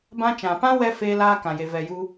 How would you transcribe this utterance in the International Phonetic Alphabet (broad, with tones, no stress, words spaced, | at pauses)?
bã˧t͡ʃã˨pã˦wɛ˧ feː˦laː˦kã˨je˨ vɛ˨ju˧